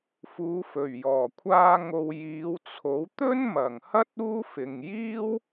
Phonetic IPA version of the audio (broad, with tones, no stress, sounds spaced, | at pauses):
f uː˨˧ f ɵ˨˩ ɥ j ɔː˨˩ kʷʰ aː˧ ŋ o˨ w j iː˨˧ w t͡sʰ o˨˥ w t̪ ɵ˥ n m ɐ˨˩ ŋ h ɐ˥ t̚ uː˥ f ɪ˨ ŋ j iː˥ w